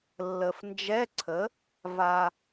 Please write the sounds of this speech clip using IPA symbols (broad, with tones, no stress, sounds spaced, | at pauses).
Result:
lː ə˨ f n d͡ʒ ɛ˧˥˧ ǀʰ ə˩˥ | v a˨